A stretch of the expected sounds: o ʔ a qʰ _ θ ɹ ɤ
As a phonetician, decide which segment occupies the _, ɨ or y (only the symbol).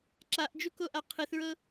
ɨ